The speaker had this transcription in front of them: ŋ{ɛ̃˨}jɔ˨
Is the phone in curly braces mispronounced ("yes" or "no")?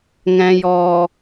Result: no